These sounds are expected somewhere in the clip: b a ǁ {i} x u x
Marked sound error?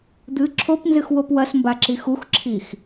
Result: no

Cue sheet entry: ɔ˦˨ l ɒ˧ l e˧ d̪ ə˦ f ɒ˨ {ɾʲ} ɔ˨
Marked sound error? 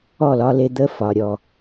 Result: no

